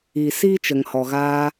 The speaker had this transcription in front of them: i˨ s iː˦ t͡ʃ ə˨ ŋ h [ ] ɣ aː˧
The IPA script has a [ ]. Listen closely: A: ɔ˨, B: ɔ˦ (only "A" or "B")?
A